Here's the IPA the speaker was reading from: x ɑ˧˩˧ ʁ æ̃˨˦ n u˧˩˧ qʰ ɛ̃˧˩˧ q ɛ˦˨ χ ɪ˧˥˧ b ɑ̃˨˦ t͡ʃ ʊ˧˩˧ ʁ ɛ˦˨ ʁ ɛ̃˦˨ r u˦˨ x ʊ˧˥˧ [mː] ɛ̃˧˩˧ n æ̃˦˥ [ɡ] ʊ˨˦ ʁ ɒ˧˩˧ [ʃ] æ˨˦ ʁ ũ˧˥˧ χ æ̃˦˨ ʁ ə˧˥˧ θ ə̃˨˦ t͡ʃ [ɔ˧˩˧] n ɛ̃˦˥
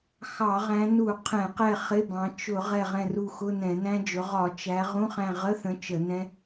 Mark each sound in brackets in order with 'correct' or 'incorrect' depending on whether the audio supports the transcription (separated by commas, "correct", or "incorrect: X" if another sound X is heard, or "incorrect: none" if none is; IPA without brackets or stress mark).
incorrect: n, incorrect: d͡ʒ, incorrect: t͡ʃ, incorrect: ə˧˩˧